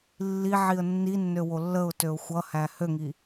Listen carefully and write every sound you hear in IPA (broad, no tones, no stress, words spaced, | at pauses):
lːiʕiə̯ nːinːø wolːəʊ̯tøʊ̯ xʷʌhæ høŋi